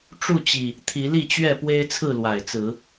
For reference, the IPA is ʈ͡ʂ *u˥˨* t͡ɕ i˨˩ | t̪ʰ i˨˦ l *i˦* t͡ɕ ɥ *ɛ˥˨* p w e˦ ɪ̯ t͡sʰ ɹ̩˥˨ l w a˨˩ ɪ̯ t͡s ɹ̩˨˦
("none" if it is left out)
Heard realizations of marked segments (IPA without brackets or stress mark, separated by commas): u˥˨, i˥˨, ɛ˥˨